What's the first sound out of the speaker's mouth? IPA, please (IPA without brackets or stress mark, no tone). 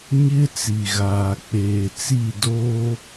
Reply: ɲ